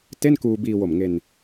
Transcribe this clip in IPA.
te˥˩nkuː˧biː˧wo˨˩m ŋe˧n

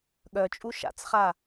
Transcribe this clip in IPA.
ɠœt͡ʃʼu ʃa̰t͡sχa

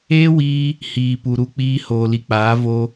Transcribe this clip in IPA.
eː˦wiː˧ | hiː˨pu˨ ɾu˦k͡piː˦ hoː˨li˨k͡paː˨˦ vo˦

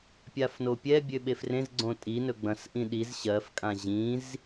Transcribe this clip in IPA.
pʲafnopʲɛ bʲøɓefrẽz ɡ͡ǀõtʼi nɵɡ͡bɐ̃sʔĩ ɗiz ɕɜfkʼã ʑĩz

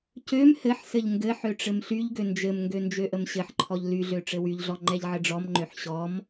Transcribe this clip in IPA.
cøm hɘħ sɘʎŋɡɘħø ʈ͡ʂɘmɬyʎɡø nd͡ʒɘmŋɡø nd͡ʒøʔəmɕɘħǃʰɔʎ lyɮø ʈ͡ʂɘwyʎɮɔ ŋ͡ǃɛʎʕɘɖ͡ʐɔmŋ͡ǃøħ ɕɔm

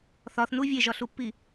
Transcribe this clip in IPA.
θɒθnu vʲeʒɒɬupːi

